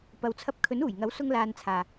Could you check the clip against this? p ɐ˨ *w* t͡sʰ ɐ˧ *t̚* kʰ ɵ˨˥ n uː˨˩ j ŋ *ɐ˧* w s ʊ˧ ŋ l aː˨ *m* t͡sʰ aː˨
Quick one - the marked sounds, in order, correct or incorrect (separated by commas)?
correct, incorrect, incorrect, incorrect